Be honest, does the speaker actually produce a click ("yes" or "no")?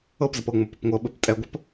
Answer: no